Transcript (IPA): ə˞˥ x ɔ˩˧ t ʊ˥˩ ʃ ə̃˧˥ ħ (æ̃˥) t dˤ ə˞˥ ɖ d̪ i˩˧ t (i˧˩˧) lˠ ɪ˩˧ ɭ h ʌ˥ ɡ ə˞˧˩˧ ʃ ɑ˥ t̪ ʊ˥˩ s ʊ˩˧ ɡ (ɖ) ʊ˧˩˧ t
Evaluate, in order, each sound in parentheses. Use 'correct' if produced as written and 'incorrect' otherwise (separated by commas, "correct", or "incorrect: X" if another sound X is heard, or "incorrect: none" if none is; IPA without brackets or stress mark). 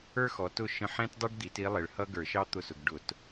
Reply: incorrect: ɛ̃˥, incorrect: i˧˥, correct